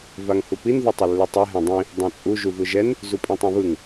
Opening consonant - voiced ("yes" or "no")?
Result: yes